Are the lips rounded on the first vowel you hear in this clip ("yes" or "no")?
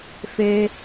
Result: no